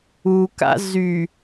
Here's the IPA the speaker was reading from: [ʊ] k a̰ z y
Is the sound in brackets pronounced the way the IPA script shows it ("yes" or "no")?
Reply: no